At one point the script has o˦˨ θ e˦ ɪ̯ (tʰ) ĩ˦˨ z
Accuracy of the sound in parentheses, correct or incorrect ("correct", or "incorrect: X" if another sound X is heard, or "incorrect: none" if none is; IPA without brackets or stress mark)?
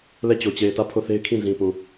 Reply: incorrect: kʰ